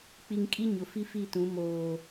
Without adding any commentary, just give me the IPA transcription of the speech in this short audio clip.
k͡pi˨ŋkʼi˦ ɲʊ˨fi˦fi˦˨tũ˨˦ moː˨

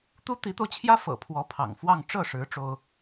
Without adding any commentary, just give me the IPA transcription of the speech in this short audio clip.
t̪u˥t̪i˧˥t̪o˧ʊ̯t͡ɕʰjä˥ fɤ̰˨˩pʰwɔ˧˥pʰɑ̰˨˩ŋfwɑ˥˧ŋ ʈ͡ʂɤ˥˩ʂɻ̩˧˥ ʈ͡ʂo˥ʊ̯

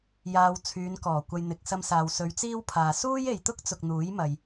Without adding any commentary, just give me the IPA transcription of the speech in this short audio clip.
jaː˧w t͡sʰyː˨˧nkɔː˨˩ kʷɐ˨j n̪ɪ˨k̚sɐ˧msaː˨w sɵ˨˧ɥt͡siː˥wpʰaː˨ suː˥je˨jt̪ʊ˥k̚t͡sʊ˨k̚ n̪uː˨˥jmɐ˨j

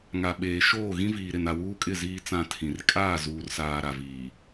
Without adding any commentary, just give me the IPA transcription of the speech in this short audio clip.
ŋa˨ɓeː˨ ʃoː˦˨ɣĩ˦viː˨ ɾɪ˨na˨wuː˦kʼɪ˦˨ ziː˦t͡sã˦˨tʰĩ˨r kʼaː˦˨zuː˨rsaː˨ ɾa˨viː˨

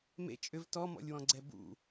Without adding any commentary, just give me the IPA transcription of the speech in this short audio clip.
mḛ t͡ʃʼʏv tɔmɔ̰lʲwɔ̃ɡ͡ǀɛ bṵ

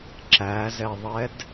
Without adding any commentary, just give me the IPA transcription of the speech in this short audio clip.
ǁæzɛðˤɛd

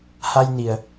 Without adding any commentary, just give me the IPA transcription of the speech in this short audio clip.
ha˧jni˩ə̯

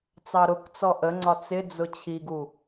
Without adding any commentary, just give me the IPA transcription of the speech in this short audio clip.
t͡sɑɾʊkt͡sɔ ʔəŋ͡ǀɒt͡s ɪd͡zʊ t͡ɕʰiɡu

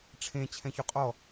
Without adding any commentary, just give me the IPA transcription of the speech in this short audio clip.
ʈ͡ʂʰẽ t͡ɕʰɛ̃çuqʼɔ

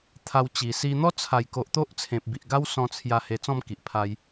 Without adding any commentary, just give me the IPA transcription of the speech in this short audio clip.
t̪ʰa˧w t͡ɕi˨˩ si˧n̪ɔ˦ t͡sʰa˨˩jko˨ʔ t̪o˦ʔt͡sʰẽ˨p̚bi˨ʔɡa˦w sɔ̃˧t͡sʰja˧ he˧t͡sɔ̃˥˧mki˨ʔ pʰa˧j

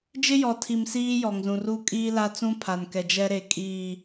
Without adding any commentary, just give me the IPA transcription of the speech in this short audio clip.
d͡ʒɪ˦jɔ˨tʰi˨m siː˦ jɔ˨ŋzũ˨r u˦ kʼiː˦la˦t͡sũ˦pʰa˨n kɛ˨d͡ʒɛ˦ ɾe˨ kʼiː˨

